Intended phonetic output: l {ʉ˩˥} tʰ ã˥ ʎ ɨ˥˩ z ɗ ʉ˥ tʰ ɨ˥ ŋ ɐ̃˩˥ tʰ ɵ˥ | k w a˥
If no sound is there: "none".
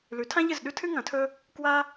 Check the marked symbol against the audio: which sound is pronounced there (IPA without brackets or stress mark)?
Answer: ʉ˩˥